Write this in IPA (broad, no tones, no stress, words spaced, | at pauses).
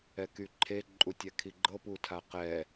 ɛkyǃʰe ǃʼutʲɛkʰiɡ͡ǃɤ putʰaqɛ